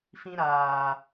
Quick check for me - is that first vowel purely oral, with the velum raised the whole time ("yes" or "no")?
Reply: no